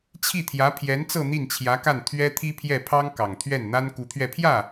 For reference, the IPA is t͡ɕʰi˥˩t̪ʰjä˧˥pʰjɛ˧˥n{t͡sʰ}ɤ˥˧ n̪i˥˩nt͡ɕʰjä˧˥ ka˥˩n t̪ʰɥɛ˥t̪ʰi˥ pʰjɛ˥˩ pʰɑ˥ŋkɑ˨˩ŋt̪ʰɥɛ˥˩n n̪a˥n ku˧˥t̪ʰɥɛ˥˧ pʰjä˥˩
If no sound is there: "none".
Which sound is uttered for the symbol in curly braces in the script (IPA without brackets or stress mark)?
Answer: t͡s